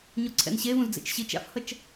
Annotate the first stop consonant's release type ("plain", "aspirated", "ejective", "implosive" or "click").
click